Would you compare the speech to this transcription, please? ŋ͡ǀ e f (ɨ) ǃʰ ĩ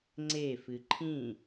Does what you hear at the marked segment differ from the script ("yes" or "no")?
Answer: no